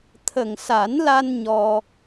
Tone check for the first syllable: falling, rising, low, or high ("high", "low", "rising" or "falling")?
low